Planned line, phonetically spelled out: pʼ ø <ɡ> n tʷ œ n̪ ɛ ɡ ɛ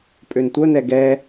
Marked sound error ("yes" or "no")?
yes